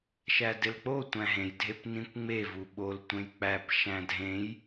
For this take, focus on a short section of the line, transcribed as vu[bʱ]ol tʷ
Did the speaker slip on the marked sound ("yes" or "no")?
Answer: yes